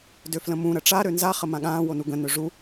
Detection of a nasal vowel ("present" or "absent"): present